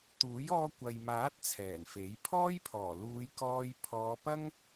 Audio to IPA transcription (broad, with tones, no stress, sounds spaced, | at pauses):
t̪ uː˨˥ j ɔː˧ kʷ ɐ˨ j m aː˨˥ t̚ t͡sʰ ɛː˨˩ n f e˨˥ j pʰ ɔː˥ j pʰ ɔː˨˩ l uː˨˧ j k ɔː˧ j pʰ ɔː˨˧ p ɐ˥ ŋ